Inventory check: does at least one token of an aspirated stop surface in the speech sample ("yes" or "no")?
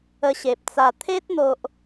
yes